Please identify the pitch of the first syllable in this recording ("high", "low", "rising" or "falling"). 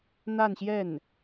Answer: falling